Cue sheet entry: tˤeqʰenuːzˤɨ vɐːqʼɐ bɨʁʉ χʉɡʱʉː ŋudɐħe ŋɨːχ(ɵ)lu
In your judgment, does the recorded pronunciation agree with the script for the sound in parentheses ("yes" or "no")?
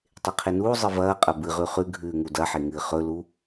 yes